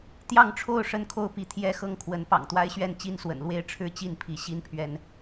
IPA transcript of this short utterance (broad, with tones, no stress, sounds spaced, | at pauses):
t̪ j ɑ˥˨ ŋ ʈ͡ʂʰ o˥˨ ʊ̯ ʂ ə˥˨ n kʰ o˥˨ ʊ̯ p i˨˦ t̪ʰ j ɛ˦ x ɤ˥˨ ŋ kʰ w ə˨˦ n p ɑ̰˨˩ ŋ t̪ w a˦ ɪ̯ ɕ ɥ ɛ˥˨ n t͡ɕ i˦ n s w ə̰˨˩ n l w e˥˨ ɪ̯ ʈ͡ʂʰ ɻ̩˦ t͡ɕ i˥˨ n pʰ i˨˦ ɕ i˦ n pʰ ɥ ɛ˦ n